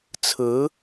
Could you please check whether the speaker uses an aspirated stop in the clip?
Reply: yes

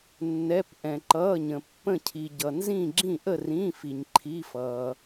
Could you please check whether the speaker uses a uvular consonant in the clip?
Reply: no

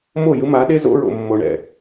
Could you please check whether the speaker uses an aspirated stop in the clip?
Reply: no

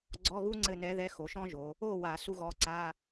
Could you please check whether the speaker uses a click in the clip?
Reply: yes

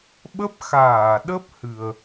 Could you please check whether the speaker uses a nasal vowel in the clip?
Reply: no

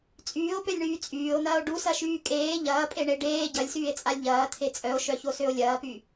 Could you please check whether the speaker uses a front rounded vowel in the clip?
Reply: yes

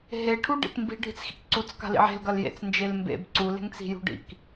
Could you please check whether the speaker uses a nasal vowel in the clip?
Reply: no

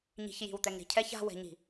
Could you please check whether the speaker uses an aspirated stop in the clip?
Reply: yes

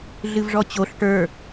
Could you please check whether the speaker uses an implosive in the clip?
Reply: no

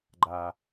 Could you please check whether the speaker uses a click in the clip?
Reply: yes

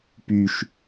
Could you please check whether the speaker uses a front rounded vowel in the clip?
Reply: yes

